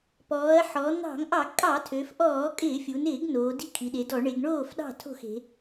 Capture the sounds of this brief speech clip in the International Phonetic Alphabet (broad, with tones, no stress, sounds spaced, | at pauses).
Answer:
p ɔː˩˧ ɐ̯ ħ ɔ˩˧ n̪ ɑ̤˧˩˧ ŋ ʔ ɑ˧˩˧ ɡ kʼ ɑ˧˩˧ tʰ ø˩˧ f ʔ ɔː˧˩˧ kʼ ɪː˧˩˧ fʲ u˩˧ n ɪː˧˩˧ ɡ n oː˩˧ d i̤˥˩ kʰ i˩˧ ɗ e˩˧ d ɔ˧˩˧ ɳ e˩˧ ɡ ɳ oː˥˩ f ɗ ɑ̤˥˩ tʰ o̤˥˩ x e̤˩˧